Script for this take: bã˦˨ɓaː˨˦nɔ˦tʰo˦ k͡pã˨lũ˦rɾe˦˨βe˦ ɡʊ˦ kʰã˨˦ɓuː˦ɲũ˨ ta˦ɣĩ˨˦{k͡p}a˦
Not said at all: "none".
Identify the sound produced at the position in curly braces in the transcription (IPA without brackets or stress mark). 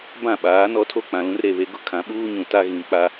k͡p